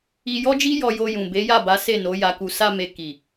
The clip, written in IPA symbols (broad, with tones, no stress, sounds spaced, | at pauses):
i˧ j ɔ˦ d͡ʒ i˦ j ɔ˧ j o˧ j ũ˨ b e˨˦ j a˦˨ b a˨˦ s e˦˨ n o˨˦ j a˧ k u˧ s a˧ m e˨ k i˨